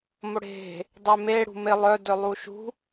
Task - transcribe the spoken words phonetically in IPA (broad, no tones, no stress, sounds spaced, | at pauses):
m o ɽ e̤ | dˤ e m e ɽ ṳ m ɪ lˠ œ d œ lˠ u ʃ ṳ